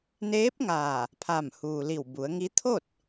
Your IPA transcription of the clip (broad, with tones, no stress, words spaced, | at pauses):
neː˧˥p̚ŋaː˧˩ | pʰa˧˩mhuː˩li˧˩w bu˩˧ə̯ŋi˧˥ t̪ʰo˥˨t̚